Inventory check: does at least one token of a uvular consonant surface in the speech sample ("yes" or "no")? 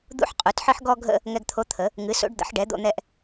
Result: yes